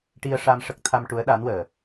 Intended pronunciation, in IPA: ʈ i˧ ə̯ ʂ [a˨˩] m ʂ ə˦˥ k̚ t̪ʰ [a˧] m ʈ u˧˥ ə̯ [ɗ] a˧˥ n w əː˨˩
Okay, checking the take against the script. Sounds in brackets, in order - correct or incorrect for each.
incorrect: a˧, correct, correct

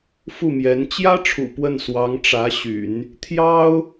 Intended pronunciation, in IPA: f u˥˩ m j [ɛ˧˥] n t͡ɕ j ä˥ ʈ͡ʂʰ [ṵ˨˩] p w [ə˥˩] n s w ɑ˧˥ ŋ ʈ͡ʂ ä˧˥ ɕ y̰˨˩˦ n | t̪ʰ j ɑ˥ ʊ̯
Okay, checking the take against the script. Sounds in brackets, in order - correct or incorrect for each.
correct, correct, correct

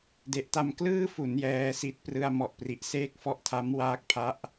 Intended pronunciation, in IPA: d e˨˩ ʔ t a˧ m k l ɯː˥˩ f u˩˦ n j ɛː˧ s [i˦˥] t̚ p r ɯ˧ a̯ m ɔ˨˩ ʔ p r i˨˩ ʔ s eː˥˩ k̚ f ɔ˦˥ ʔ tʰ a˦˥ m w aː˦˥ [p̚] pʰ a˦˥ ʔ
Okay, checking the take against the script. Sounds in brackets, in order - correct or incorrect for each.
correct, incorrect: k̚

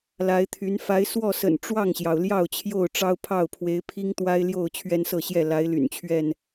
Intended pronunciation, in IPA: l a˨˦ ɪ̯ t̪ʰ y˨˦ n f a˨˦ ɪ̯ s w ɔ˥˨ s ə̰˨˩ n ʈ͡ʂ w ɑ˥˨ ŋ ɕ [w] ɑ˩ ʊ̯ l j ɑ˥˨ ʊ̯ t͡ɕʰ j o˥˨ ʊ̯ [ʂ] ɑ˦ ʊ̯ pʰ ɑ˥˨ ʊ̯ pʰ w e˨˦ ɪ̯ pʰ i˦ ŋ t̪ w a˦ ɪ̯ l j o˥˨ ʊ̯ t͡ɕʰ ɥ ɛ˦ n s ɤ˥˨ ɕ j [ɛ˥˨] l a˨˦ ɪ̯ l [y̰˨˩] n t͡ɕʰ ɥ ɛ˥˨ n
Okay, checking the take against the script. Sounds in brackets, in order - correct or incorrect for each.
incorrect: j, incorrect: ʈ͡ʂ, correct, correct

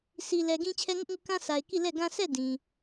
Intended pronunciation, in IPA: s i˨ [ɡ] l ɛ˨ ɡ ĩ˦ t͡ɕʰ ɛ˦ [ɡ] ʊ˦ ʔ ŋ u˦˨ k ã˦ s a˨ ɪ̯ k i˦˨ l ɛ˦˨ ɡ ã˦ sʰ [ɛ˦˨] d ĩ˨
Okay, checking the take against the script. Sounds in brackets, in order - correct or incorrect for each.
incorrect: none, incorrect: ŋ, correct

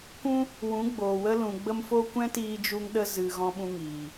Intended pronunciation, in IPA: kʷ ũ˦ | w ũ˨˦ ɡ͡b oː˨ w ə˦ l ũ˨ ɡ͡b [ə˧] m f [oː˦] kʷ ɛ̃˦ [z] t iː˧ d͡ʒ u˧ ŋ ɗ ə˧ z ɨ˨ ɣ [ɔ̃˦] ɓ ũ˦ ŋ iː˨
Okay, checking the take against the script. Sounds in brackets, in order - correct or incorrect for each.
correct, incorrect: o˦, incorrect: none, correct

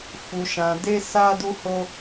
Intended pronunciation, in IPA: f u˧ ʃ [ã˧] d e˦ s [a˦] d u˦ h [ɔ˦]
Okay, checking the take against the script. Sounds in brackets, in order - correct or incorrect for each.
correct, correct, incorrect: o˦

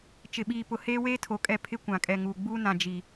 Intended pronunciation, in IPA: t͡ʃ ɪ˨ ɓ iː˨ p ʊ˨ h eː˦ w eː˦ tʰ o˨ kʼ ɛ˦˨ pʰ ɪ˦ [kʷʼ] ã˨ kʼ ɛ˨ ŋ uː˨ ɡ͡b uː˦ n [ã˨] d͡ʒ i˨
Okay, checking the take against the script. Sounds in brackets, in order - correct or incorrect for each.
incorrect: kʷ, correct

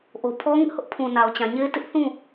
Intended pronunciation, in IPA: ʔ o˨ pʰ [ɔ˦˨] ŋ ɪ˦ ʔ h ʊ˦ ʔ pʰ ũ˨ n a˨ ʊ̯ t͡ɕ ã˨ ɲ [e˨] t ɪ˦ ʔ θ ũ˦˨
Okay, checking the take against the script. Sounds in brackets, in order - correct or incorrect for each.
incorrect: ɔ˦, incorrect: e˦

